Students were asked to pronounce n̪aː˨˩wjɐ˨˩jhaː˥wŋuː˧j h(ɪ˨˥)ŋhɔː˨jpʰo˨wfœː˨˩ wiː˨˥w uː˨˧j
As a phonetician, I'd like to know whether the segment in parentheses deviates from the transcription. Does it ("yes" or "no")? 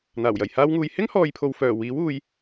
yes